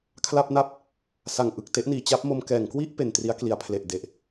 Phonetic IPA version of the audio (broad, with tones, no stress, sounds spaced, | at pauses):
kʰ l a˥˩ p̚ n a˥˩ p̚ | s a˨˩ ŋ ʔ ɯ˨˩ k̚ t e˦˥ ʔ n iː˩˦ t͡ɕ a˦˥ p̚ m o˧ m k ɛː˩˦ ŋ k w i˥˩ ʔ p e˨˩ n t r i˦˥ a̯ k l i˩˦ a̯ pʰ l e˨˩ ʔ d e˨˩ ʔ